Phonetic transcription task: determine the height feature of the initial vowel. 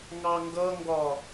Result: low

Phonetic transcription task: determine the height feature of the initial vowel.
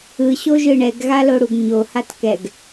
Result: high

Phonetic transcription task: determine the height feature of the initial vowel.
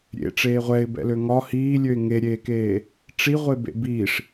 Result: mid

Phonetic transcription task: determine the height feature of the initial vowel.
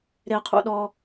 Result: mid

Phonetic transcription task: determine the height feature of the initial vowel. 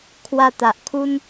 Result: low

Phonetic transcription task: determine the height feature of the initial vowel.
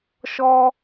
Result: mid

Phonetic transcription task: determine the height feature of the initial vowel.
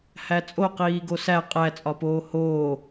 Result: low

